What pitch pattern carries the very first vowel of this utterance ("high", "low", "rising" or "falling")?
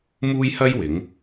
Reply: high